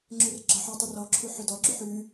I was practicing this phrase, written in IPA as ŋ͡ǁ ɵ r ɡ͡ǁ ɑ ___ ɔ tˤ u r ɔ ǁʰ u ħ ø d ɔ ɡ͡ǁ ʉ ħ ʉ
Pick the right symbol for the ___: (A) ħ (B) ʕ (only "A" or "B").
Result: A